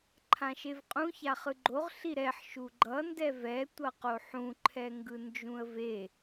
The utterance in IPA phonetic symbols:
ǃʰ ã ʃ e v qʼ ũ ç a χ ɯ ɡ͡ǃ o ʁ ɬ i ɾ ɛ ħ ʃ u ɡ͡ǃ ʌ n d ɛ v ɛ tʷ ʌ q o ħ ũ ǃʰ ɛ ŋ ɡ ɯ n d͡ʒ ũ ə̯ v e

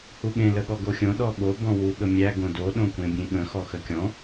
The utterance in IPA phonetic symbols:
h u ɠ ẽ l ə ɠ ɔ ɡ o xʲ õ ɗ ɔ ɠ o b ɔ̃ w u ɠ ə mʲ æ ɡ õ d o ɗ õ kʷ ẽ bʲ ẽ ɠ ə̃ x ɔ x ə kʲ ɔ̃

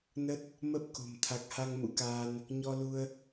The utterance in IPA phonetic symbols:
n ə˦˥ t̚ | m ə˦˥ p̚ k o̤˨˩ m t̪ʰ a˨˩ k̚ h a˧ ŋ m ṵ˧˥ k aː˧ n | ɲ ɔ˧ l u˧ ə̯

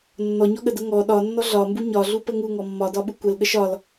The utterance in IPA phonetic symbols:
nː ɔ ɲ ɔ ɠ ə d ə ŋ ɔ ɗ ɒ nː ɔ ɮ ɒ m b u ɲ ɒ ɮ u p ə ŋ u ŋ ɔ mː ɒ d ɒ ɓ u kʷ ə l ɠ ə ʃ ɒ l

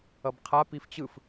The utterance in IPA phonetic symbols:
ʌ b qʰ a p i f t͡ɕ ɯ f

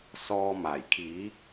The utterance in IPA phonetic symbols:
s ɔː˧ m aː˨˩ j kʰ iː˨˥ k̚

